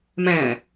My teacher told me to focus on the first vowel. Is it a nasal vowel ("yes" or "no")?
yes